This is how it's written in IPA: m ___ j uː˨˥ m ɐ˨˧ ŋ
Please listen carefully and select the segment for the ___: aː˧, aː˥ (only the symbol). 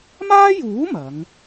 aː˥